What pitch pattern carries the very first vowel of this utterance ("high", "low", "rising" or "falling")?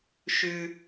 high